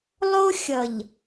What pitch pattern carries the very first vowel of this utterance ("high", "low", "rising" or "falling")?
high